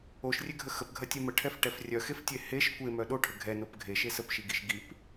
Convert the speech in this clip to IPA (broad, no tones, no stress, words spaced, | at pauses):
oʃrʲeɡʱə xəpɡʱɐtʲe məʈʰɛfʈɛf rʲœxeftʲe heʃ kʷemœ ɗoʈʰə ɡʱɛnop ɡʱeʃe səpʃiɡiʃ ɡip